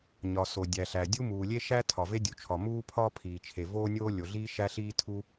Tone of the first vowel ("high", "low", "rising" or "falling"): low